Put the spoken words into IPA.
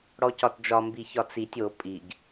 ɽ ɔ c ɒ t d͡ʒ ɒ m b i ç ɒ t͡s i tʲ o pʼ i ɡ

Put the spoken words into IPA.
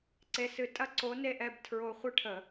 ǀ e˨˥ s ɨ˧˩˧ tʼ ɐ˦ ǀ o˨˥ n e˦ ʔ ɛ˦ b tʰ ɹ o˦ χʷ ɨ˦ ʈʰ ə˧˩˧

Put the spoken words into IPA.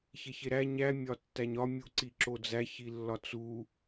ç e ç e ɾ æ ɲ æ mʲ ɒ tː æ ɲ ɒ mʲ u ǀ i ǁ o d͡z æ ç i lː ɒ t͡s u

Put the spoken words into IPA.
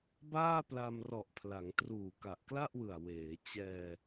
b aː˥˩ p l a˧ m r ɔ˨˩ ʔ pʰ l a˩˦ ŋ t r uː˨˩ k a˨˩ ʔ k l a˥˩ ʔ w ɯ˨˩ a̯ w eː˩˦ t͡ɕ ɛː˧

